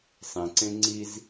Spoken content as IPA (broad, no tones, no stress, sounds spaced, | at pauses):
sˤ ĩ ǀ ẽ ŋ͡ǀ i z